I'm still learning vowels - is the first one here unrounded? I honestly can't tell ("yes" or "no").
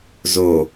no